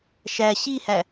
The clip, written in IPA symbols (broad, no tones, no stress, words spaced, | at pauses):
ʃæ ɕihæ